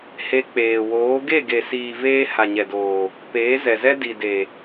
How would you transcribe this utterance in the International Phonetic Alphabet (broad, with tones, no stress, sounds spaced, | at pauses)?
h e˧ k͡p eː˨ w oː˨˦ ɡ e˦˨ ɡ e˨ s iː˨ v eː˧ h a˨ ɲ ɛ˨ d oː˨ | p eː˨˦ z ɛ˨ z ɛ˦ d i˨ d e˨